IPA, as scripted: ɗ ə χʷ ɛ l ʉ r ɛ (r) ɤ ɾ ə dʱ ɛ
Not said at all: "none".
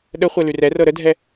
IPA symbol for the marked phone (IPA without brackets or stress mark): r